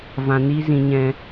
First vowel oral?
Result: no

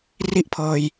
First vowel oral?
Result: yes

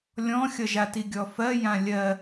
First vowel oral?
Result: no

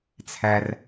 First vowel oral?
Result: yes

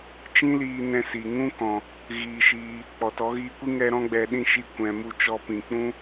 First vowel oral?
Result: no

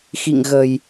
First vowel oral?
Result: yes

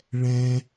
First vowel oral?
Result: no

